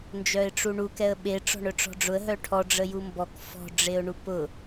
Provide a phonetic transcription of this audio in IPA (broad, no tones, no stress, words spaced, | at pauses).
nd͡ʒœɪ̯ʈ͡ʂuɳu kɛə̯ɓe ʈ͡ʂɔ̤ɳœʈ͡ʂɔ̤ɖ͡ʐʊə̯ ɦœʈʰɔ ɖ͡ʐəjumbɔk fɔ̤ ɖ͡ʐeʊ̯ɳupʊ